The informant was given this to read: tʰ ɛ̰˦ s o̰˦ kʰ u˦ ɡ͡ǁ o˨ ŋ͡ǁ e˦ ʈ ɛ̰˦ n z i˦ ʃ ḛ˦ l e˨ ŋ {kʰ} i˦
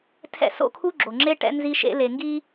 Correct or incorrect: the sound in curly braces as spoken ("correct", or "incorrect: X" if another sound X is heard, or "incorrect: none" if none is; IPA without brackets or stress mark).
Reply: incorrect: ɡ